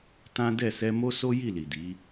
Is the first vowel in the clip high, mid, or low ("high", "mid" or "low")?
low